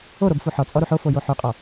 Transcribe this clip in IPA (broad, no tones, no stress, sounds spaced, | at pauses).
o ɾ o b f u ħ ɔ t͡sʼ ɔ ɾ u ħ o f o j o ħ u qʼ ɔ